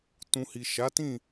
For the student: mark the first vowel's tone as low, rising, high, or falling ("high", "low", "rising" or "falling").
low